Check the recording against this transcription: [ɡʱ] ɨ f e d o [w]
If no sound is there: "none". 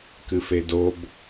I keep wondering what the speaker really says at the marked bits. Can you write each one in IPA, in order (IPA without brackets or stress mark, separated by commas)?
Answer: k, b